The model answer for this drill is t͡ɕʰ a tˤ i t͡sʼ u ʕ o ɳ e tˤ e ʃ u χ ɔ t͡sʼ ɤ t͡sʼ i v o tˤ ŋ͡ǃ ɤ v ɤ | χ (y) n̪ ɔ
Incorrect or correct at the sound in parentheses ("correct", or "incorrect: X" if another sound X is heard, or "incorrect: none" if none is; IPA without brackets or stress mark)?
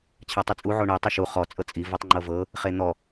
incorrect: e